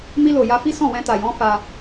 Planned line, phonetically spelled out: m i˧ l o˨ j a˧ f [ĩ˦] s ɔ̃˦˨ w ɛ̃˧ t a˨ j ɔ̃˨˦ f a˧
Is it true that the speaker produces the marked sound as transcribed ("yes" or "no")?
no